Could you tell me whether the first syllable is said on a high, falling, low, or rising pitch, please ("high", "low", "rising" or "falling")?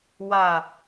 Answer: low